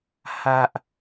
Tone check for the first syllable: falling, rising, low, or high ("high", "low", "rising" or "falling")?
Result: high